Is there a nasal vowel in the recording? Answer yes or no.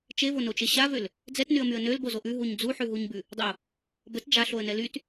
no